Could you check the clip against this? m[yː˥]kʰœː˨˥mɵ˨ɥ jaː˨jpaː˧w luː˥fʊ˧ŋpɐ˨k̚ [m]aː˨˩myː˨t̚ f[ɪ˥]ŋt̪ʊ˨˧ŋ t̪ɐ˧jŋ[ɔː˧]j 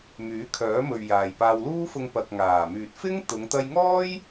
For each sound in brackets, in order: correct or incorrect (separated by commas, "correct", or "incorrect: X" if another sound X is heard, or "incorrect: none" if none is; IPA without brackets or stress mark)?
incorrect: yː˨˥, incorrect: ŋ, correct, incorrect: ɔː˥